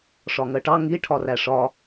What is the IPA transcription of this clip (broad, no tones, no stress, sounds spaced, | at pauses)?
ʂ ɒ ŋ ɜ ʈ ɑ ŋ i ʈʰ ɒ r æ ʂ ɒ